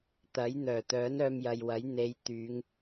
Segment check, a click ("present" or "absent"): absent